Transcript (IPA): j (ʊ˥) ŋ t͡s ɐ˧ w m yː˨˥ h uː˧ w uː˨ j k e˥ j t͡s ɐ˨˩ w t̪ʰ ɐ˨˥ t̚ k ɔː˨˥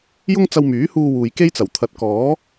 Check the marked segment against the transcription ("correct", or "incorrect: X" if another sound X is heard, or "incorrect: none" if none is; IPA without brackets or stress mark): correct